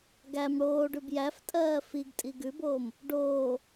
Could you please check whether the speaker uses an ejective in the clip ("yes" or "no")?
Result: yes